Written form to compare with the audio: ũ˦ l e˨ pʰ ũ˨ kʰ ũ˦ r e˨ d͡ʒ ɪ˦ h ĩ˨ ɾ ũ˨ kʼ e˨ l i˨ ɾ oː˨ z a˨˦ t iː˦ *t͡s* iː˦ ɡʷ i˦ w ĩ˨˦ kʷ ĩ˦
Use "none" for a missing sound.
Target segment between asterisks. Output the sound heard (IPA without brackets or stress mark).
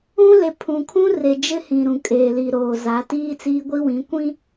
t͡s